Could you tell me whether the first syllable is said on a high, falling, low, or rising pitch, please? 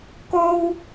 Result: high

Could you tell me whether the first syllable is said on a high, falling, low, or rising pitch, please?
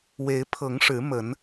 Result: rising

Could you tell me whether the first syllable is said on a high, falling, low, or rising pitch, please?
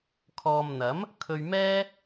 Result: low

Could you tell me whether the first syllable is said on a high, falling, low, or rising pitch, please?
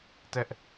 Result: high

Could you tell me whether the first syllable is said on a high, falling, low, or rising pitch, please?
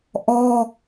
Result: high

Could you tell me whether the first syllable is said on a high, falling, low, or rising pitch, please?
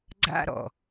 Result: high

